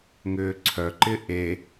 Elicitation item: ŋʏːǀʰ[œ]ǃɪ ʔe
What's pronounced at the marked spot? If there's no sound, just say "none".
œ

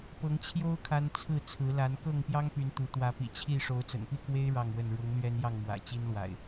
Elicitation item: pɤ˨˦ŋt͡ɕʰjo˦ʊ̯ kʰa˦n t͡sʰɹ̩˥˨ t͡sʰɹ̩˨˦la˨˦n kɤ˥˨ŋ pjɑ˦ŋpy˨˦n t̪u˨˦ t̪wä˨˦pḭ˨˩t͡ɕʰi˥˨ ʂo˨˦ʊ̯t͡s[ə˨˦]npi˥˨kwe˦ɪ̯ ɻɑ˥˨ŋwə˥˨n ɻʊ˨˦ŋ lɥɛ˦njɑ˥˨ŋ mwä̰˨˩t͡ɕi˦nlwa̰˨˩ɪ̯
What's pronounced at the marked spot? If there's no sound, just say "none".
ə̰˨˩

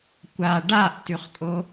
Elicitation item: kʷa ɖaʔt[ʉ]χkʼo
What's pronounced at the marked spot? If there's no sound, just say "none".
ʉ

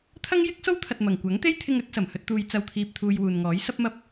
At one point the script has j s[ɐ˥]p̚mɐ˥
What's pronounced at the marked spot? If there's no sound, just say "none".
ɐ˥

